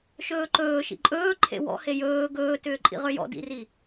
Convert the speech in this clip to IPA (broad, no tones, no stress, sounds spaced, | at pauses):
ʃ ɵː ǃ ɵː ʃ ḭ ǃʼ ɵː ǃʰ ḛ w ɔ̰ h e j ɵː ɡ ɵː t ʏː ǃʼ ḭ ʁ ʏ j ɔ̰ d ḭ r i